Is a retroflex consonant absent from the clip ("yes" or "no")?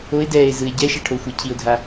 no